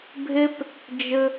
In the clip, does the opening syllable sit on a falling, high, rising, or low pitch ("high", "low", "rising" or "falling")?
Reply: high